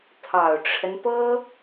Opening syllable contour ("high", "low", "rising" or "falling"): low